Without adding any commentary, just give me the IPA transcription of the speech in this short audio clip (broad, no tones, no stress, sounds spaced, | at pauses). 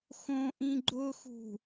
x õ ʔ ĩ ɡ͡ǃ ʊ x ṳ